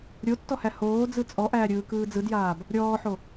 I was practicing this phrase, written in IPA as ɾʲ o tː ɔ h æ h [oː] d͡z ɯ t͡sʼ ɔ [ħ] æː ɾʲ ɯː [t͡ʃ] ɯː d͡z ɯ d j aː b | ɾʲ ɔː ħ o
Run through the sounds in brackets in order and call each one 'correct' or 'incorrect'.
correct, incorrect, incorrect

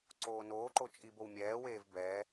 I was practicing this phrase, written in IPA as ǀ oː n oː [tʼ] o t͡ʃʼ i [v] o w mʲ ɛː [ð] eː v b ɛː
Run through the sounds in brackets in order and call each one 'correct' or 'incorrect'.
incorrect, incorrect, incorrect

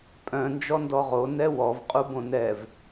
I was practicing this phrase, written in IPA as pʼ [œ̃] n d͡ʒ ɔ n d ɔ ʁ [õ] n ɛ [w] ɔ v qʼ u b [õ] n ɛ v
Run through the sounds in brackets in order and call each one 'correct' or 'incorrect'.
correct, incorrect, correct, correct

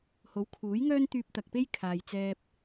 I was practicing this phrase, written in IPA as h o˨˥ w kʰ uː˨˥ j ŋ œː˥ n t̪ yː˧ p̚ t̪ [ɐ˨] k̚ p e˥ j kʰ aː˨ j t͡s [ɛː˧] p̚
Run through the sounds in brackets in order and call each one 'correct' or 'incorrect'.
correct, correct

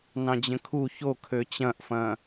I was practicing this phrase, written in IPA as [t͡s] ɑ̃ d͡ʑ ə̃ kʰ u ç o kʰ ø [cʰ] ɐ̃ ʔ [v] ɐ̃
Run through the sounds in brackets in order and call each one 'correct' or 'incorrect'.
incorrect, incorrect, incorrect

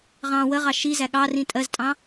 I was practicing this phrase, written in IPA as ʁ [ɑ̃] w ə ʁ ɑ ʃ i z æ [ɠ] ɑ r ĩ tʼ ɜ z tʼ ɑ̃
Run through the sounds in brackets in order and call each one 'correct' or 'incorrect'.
correct, correct

